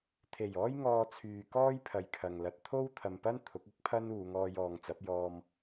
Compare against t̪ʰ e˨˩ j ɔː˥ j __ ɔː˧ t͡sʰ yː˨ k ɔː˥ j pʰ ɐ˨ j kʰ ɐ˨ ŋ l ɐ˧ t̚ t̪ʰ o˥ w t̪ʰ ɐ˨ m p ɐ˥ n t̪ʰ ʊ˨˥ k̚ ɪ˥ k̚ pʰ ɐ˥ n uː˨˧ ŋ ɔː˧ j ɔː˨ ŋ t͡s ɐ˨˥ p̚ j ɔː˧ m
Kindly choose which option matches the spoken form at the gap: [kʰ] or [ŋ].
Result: ŋ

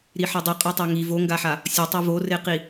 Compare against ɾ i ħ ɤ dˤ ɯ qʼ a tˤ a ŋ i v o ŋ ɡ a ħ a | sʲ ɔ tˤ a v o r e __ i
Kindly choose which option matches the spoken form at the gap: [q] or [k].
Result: q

